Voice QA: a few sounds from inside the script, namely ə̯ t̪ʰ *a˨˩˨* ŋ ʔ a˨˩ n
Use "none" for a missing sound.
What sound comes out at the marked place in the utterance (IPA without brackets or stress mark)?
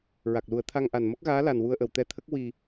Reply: a˧